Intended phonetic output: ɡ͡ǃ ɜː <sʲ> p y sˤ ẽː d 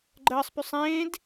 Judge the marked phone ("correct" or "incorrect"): incorrect